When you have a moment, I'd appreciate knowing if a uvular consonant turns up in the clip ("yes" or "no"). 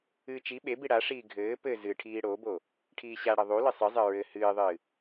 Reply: no